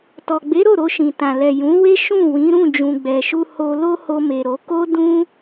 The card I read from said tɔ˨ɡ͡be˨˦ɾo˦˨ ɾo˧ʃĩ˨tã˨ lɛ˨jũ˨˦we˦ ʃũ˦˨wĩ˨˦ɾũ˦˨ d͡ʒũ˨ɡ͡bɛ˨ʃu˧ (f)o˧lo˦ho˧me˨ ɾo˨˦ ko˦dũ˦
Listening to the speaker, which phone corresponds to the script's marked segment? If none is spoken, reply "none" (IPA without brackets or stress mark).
h